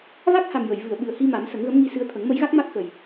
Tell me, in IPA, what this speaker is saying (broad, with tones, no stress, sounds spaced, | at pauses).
v a˦˥ k̚ h a˨˩ m j ə˨˩˨ j v ɨ˨˩˨ ə̯ ɓ ɨ˨˩ ə̯ h i˧ m a˨˩˦ m s ə˨˩˦ ŋ ɣ ə˧˥ m ŋ i˧ s ɨ˧ ə̯ t̪ʰ ə˨˩˦ ŋ m ə˧˥ j ɣ a˦˥ k̚ m a˦˥ k̚ x ə˨˩ j